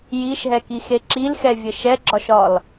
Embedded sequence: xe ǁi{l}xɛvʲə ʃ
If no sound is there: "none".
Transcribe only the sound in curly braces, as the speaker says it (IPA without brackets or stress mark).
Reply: l